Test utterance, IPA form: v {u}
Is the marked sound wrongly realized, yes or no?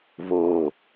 yes